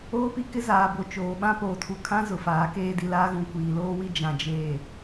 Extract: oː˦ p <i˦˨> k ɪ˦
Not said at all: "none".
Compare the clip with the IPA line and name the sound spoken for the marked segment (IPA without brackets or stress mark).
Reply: i˦